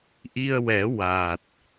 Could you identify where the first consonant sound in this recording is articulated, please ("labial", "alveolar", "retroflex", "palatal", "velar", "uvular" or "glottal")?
glottal